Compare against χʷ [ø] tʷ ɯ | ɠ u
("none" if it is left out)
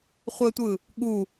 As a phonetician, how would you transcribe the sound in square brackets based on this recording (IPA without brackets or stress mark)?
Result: ɘ